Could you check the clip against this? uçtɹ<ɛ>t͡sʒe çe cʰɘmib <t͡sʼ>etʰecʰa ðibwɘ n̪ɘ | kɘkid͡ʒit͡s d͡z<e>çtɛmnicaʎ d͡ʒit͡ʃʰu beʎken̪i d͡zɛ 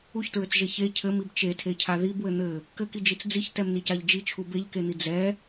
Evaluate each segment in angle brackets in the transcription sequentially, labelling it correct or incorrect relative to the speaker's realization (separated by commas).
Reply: incorrect, incorrect, incorrect